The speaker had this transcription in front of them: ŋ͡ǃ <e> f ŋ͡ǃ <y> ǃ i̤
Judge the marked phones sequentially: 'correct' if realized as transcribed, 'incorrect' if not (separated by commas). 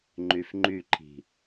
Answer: incorrect, correct